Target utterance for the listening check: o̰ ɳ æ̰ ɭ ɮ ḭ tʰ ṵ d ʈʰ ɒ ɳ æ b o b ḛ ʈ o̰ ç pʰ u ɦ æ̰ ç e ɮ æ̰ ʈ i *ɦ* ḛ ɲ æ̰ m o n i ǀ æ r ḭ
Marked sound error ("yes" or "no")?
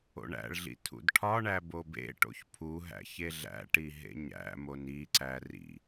no